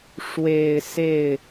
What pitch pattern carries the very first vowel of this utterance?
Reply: low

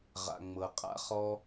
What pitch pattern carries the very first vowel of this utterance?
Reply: low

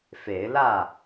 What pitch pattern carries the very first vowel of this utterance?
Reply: rising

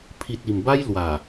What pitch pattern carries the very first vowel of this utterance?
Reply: low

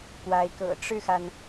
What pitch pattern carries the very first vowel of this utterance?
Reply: rising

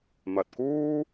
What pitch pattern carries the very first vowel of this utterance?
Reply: low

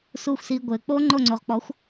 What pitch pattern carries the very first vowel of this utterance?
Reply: falling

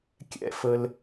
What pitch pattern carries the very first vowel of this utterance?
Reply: rising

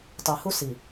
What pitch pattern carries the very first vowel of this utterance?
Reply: low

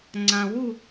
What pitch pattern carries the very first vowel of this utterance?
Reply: low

